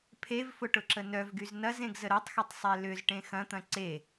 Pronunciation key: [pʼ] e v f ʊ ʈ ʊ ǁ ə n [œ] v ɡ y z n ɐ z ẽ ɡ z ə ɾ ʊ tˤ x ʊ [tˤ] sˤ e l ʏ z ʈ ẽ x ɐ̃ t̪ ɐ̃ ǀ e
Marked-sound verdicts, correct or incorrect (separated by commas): incorrect, correct, correct